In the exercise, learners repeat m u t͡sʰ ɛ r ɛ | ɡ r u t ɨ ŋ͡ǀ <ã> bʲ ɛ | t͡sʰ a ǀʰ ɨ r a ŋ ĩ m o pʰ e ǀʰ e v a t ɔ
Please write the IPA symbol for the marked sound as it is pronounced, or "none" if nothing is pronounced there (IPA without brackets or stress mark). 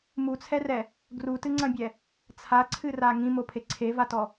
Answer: ɐ̃